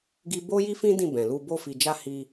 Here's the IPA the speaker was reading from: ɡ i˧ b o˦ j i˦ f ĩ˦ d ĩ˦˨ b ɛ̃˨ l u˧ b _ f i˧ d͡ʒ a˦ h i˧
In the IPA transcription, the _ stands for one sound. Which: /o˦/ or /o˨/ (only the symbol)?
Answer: o˦